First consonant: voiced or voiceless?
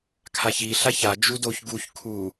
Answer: voiceless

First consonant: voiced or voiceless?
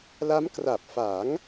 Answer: voiced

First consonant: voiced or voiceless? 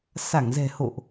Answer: voiceless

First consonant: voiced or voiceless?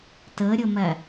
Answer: voiceless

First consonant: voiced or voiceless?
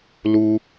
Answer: voiced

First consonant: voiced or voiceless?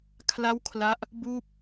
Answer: voiceless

